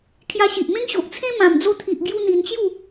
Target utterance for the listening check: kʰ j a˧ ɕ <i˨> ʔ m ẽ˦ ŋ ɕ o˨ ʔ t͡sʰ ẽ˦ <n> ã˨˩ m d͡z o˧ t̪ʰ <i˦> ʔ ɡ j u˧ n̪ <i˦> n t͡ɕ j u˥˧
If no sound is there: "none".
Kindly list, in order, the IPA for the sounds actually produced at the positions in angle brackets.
i˨, m, i˨, i˧

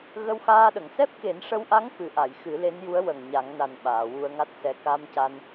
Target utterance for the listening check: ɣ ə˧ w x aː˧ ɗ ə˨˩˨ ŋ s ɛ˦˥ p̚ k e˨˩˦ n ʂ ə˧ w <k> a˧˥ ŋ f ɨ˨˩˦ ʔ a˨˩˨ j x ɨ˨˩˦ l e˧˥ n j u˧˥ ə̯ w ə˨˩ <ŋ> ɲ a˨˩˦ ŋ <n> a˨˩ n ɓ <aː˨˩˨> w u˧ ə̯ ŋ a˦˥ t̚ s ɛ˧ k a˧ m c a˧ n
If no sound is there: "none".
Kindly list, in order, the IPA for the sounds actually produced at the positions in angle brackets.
ʔ, ŋ, n, aː˨˩˨

